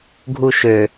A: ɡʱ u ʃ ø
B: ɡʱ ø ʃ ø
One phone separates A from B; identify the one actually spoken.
A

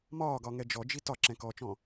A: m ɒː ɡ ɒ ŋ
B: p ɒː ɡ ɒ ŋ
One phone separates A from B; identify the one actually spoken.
A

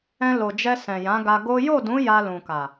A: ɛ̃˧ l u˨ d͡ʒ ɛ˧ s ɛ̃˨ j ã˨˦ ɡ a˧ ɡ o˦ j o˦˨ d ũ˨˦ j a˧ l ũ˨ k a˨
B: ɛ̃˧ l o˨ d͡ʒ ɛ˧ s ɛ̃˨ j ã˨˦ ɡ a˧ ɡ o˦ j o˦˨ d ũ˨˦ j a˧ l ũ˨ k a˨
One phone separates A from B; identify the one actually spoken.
B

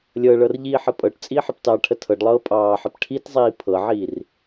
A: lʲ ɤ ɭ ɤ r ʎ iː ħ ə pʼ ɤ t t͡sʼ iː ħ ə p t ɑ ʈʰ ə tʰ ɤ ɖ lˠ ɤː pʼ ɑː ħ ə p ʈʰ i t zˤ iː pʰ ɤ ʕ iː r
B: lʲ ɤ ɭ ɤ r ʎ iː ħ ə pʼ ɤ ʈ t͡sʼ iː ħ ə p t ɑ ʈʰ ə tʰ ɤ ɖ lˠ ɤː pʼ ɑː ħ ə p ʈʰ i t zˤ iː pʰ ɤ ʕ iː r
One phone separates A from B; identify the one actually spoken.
B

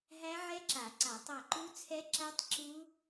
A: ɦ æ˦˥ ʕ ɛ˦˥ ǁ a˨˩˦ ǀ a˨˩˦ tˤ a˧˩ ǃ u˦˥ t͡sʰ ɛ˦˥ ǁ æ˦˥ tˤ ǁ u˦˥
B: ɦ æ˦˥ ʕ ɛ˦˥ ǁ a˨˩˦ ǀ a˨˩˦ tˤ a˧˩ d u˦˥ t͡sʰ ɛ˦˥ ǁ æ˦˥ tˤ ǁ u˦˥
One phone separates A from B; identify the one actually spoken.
A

